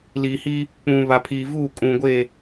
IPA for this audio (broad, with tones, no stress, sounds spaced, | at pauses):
l i˨ h i˦ | k͡p ũ˨ β a˨ pʰ iː˨ v uː˦˨ kʼ ũ˨ ɡʷ e˦˨